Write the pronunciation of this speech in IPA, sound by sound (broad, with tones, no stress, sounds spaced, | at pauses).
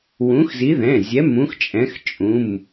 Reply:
w ũ˨˦ x z i˨˦ ð ɛ̃˩˧˩ zʲ ɛ˨˦ m ũ˨˦ x t͡ʃʼ ɛ̃˨˦ x t͡ʃʼ ũ˩˧˩ m